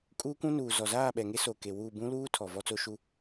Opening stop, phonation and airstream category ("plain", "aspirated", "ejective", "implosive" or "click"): ejective